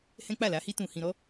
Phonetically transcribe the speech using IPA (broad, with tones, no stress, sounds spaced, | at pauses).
h ɛ̃˦ k͡p a˦˨ l a˨˦ h i˦ t ũ˧ h ĩ˧ ɾ ɔ˦